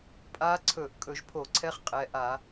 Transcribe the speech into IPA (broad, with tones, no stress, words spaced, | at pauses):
pʼa˧˥ǀʰɵ˧˩˧ʔ kʼɵ˧˩˧ʒpʰo˧˩˧ǀʰɛ˧˥χ qʼɛ˩˧˩ ʔa˧˩˧